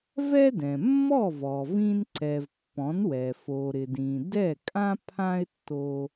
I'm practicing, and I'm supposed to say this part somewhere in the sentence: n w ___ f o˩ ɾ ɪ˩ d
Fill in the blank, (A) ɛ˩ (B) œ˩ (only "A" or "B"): A